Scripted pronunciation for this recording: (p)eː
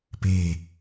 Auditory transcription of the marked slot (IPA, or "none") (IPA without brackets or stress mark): p